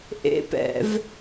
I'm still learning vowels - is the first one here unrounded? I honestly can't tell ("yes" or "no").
yes